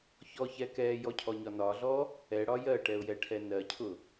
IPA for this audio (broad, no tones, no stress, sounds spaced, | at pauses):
ç ɔ ç ɛ k ɛː j ɔ cʰ ɔ ɲ ɒ n ɒ ɮ ɔ | ɛ ɽ ɒ j ɜ ʈ ɛ ʊ̯ j ɛ ʈʰ ɛ n ɜ cʰ ʊ